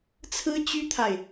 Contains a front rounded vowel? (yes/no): yes